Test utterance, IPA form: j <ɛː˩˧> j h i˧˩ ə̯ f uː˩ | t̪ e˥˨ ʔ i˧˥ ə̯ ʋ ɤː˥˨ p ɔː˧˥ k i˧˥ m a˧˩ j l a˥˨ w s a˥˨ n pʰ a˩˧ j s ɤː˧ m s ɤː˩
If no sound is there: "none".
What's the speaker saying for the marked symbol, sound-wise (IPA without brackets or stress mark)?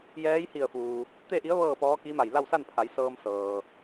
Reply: ɛː˧˥